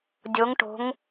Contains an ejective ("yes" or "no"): no